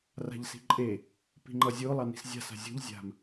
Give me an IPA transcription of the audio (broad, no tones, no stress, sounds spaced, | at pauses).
r a̤ ʎ s i̤ ǃʼ e | p i̤ ŋ͡ǃ ʌ zʲ o lˠ ɑ n i̤ s zʲ a̤ s a̤ zʲ o̤ ʎ zʲ a̤ m